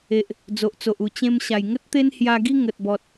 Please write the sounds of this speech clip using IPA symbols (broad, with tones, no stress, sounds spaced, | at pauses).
e˨ ʔ | d͡z o˨ ʔ t͡s o˨ ʔ u˨˩ t͡ɕ ẽ˧ m ɕ a˨˩ j ŋ ə˦ t̚ t̪ e˦ n h j a˧ ɡ i˦ ŋ ə˨ t̚ b ɔ˨ t̚